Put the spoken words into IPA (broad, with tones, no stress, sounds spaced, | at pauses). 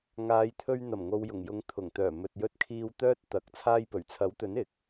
ŋ aː˨˧ j t̪ʰ ɵ˧ ɥ n̪ ɐ˨˩ m ŋ o˨ w j ʊ˨˩ ŋ j ʊ˨˧ ŋ t̪ʰ ʊ˨˩ ŋ t̪ œː˨˩ m ɵ˨ t̚ j ɵ˧ t̚ kʰ iː˧ w t̪ œː˥ t̚ t̪ ɐ˨˥ k̚ t͡sʰ aː˧ j p ɵ˨˩ ɥ t͡sʰ ɐ˨˥ w t̪ ɵ˨˥ n ɪ˨˥ k̚